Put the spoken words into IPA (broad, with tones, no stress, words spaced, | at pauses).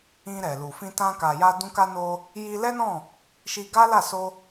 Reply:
ĩ˧ɾɛ˨lu˨fĩ˧ tã˧ka˨ja˧dũ˧ ka˧no˧ | ji˧lɛ˦nɔ̃˦˨ | ʃi˧ɡa˦la˦˨so˧